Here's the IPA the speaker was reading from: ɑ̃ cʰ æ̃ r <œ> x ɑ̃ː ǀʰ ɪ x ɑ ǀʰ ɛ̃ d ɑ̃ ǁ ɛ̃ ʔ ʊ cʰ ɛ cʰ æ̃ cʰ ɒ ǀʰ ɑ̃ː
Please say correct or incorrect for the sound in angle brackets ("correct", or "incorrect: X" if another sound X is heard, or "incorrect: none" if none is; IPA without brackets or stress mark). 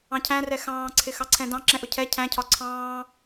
incorrect: ɛ